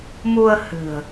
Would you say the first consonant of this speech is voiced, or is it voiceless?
voiced